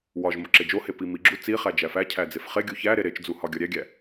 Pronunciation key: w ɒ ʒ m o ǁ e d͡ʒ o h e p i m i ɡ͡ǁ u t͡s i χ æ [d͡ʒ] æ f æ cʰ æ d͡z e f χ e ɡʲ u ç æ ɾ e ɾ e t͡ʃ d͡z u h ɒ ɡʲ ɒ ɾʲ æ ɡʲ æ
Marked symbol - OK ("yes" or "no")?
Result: yes